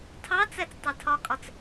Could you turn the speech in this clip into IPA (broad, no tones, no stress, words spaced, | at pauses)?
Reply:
tʰɑt͡sæt͡s tˤɜtʰɒkʼɒt͡s